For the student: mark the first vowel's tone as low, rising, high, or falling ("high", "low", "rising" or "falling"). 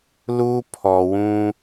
high